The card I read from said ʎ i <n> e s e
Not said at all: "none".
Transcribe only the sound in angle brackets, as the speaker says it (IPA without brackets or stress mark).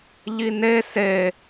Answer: n